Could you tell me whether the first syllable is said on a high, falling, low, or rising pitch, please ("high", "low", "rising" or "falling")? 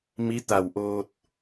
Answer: rising